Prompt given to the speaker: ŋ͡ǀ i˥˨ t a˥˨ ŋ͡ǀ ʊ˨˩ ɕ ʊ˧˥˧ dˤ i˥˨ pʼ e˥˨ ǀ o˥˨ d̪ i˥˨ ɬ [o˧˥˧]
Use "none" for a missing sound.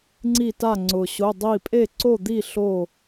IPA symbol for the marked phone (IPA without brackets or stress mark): o˥˨